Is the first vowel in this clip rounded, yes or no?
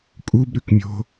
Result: yes